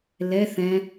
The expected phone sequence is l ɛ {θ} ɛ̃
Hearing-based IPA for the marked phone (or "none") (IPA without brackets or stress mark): θ